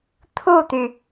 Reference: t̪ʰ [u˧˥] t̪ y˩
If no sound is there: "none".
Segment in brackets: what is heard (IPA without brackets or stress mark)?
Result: u˥˩